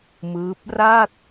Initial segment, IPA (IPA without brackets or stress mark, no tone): m